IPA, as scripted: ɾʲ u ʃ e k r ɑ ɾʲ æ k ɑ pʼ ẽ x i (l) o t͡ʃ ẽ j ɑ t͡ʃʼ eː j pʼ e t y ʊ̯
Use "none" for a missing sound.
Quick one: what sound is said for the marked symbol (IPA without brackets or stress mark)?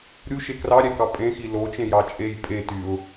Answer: l